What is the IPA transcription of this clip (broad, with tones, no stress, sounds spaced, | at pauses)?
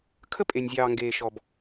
kʰ ə˦ pʼ e˨ nʲ zʲ ɑː˨ ŋ ɡ eː˨ ʃ ɔ˨ b